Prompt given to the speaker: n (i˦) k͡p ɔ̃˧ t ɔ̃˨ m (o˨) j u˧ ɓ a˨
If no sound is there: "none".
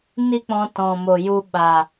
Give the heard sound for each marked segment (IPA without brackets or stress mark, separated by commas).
i˦, o˨